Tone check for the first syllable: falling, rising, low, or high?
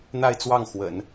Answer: falling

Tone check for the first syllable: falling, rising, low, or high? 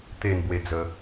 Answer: falling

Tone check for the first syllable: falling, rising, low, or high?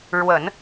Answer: low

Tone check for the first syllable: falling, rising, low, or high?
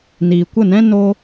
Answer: low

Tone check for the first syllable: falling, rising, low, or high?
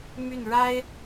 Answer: falling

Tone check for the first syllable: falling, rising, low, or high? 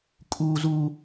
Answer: high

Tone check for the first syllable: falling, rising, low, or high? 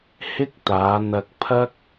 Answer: high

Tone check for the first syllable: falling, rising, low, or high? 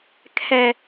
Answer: high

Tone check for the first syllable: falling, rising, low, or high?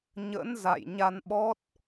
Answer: rising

